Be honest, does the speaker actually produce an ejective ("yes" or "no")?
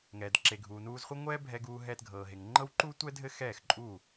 yes